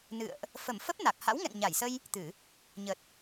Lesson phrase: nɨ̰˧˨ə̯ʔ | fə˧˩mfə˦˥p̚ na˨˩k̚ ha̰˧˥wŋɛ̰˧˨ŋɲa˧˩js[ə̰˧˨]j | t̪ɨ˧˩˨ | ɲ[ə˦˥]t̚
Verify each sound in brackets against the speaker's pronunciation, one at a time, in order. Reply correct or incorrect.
incorrect, incorrect

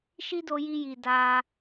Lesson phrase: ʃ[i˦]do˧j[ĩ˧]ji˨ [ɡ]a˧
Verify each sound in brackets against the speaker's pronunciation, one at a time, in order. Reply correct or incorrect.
correct, incorrect, incorrect

